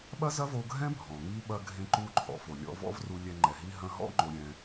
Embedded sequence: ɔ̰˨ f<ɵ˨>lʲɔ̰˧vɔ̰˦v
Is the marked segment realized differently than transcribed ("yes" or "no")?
yes